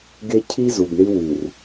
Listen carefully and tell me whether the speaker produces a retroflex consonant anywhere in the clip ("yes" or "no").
yes